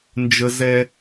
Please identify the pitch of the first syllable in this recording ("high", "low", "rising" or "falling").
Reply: high